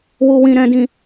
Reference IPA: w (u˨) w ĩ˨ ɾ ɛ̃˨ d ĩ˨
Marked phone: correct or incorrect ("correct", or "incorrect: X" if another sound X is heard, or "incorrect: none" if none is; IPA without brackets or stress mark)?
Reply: correct